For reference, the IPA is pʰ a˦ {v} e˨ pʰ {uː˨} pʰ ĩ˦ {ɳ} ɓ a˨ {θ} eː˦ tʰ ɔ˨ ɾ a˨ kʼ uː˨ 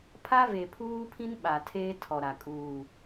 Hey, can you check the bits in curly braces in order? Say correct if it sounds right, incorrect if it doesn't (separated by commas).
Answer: correct, incorrect, incorrect, incorrect